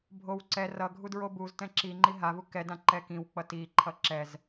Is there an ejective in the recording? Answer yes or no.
no